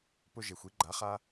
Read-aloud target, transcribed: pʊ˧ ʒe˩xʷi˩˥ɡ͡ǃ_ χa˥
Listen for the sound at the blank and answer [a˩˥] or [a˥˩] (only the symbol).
a˩˥